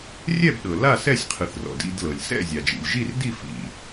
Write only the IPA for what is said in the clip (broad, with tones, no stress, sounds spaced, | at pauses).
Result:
rʲ ɛ˥˨ b ɗ ɤ˩ l a˥˨ s ɛ˥˨ sʲ qʰ ɯ˩ θ r ɔ̰˩ d ḭ˥˨ d l ɤ˩ lʲ s ɛ̰˥˨ zʲ a˩ d͡ʒ ḭ˩ lʲ ʒ i˥˨ r d i˥˨ f ḭ˩